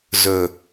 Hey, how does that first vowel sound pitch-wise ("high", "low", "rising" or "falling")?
low